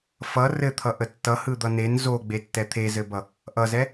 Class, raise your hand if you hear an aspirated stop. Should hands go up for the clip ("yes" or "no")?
yes